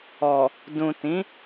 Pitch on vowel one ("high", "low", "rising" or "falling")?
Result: low